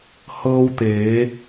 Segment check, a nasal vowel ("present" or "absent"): absent